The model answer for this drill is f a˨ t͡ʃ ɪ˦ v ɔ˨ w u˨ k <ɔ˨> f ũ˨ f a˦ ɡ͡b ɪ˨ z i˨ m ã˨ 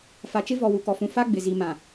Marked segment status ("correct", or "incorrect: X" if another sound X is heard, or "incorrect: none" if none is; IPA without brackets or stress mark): correct